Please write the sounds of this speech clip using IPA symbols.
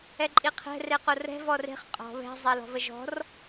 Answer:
ɛǃʼiqʰɛ̤ reqorɛ̤ vɔre̤χ qʼɔ̤ βɛ̤ zˤɛlɔ̤vəʒɔ̤r

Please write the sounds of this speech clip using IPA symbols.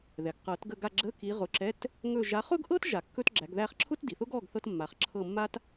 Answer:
ðɛ˩ɡqɤ˨˩˦tɡə˦˨ ɡa˦˨ɡ͡ǁə˧˥˧ki˨˦ ʁʊ˨˦ǁɛ˧˥˧t | ŋɵ˦˨ ʒa˨˦χʊ˥ɡʔɤ˥t ʒa˨˩˦kːɵ˥tɡ͡ǁæ˨˦ɡ ðæ˦˨χǁʰʊ˥tdi˩θʊ˥ɡ ɔ˧˥˧ɡθɤ˥tmːa˨˦χ ǁʰɤ˦˨mːa˥t

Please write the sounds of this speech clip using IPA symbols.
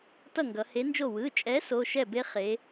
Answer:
tʌ˥˩ŋɡʌ˩˧he˨˥nd͡ʒo˥˩ wɯ˩˧˩t͡ʃʼɛ˨˥ so˩˧˩ʃɛ˥˩be˦ χe˩˧

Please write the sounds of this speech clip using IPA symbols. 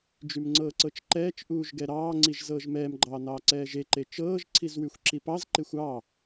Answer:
d͡ʒymŋ͡ǀɤːǀɤt͡ʃǃɛːt͡ʃ ʔuːʒɡɛɾɑːŋ͡ǀiʒ zɤːʒmɛːmɡ͡ǃɑː nɑːǀɛːʒeǃe t͡ʃɤːʒǀʰizwyxʷ ǁipɑzǃexʷ ɑ

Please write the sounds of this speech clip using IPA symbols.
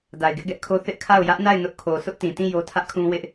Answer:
da˨ɪ̯ɡɪ˦ʔɡɛ˦ʔkʰo˦ θɪ˦ʔkʰa˦˨ʊ̯ jä˦ʔna˦˨ɪ̯ nʊ˦ʔkʰo˨ sʰʊ˦ʔtĩ˨tĩ˦˨ jo˦tʰä˦ʔkʰũ˦ wɪ˦ʔ

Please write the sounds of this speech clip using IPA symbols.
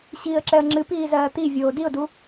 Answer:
ɕiːə̯ǁɛə̯ŋ͡ǁɨpiː zɜːt̪ivʲoː diʊ̯du

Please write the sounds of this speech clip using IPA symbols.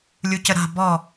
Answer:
lʲucəɾa̤ bɔ

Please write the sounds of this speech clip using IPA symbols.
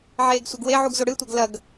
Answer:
ʕeːɡsʷɐɡweʕuɡ zoɽɨtʷɐɡ lɐɡ

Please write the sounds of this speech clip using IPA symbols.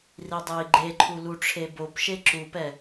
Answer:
ridˤei̯ɡ͡ǃeǃʰu luʈ͡ʂʰebopʃe ǁupɛ

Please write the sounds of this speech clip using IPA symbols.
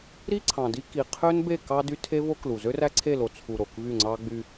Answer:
ɾi˦ ǀʰɑ̃˨di˦ki˨ qʰø˦nbe˦˨ kɑ˦dy˦ tʰe˦vo˦klu˨ zø˦ræ˦ǀʰe˦˨lo˨ t͡sʰu˨ ɾo˨kvy˦˨ŋ͡ǀɑ˦ɡ͡by˦

